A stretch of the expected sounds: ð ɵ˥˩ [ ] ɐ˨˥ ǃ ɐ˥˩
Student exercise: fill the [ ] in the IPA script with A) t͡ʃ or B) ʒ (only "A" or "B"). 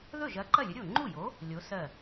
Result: B